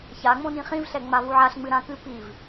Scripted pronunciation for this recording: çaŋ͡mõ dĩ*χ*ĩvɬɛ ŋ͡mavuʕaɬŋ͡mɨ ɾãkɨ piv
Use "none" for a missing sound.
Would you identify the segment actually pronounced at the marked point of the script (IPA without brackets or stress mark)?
χ